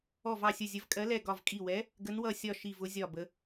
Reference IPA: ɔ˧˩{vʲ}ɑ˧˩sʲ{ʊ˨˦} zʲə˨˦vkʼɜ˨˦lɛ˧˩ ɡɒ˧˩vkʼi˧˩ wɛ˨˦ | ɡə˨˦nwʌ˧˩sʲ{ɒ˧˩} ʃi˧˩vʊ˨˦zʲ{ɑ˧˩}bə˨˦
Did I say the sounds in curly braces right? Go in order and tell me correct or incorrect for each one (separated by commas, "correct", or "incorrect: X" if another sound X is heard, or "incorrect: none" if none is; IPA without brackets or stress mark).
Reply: incorrect: v, incorrect: ʊ˧˩, correct, incorrect: ɒ˧˩